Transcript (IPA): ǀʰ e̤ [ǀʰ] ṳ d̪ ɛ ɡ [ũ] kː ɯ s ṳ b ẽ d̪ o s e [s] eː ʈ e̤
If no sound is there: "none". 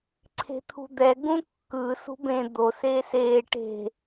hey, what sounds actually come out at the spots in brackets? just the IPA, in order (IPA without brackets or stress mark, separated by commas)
t̪ʰ, ũ, s